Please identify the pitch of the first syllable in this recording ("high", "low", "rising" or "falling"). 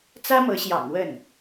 high